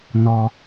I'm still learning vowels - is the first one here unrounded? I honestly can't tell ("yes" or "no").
no